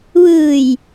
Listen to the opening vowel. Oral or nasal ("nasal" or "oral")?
oral